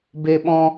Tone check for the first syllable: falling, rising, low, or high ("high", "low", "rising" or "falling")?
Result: high